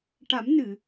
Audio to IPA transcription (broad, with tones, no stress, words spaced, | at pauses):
ʈa˨˩˦mnɨ˨˩˨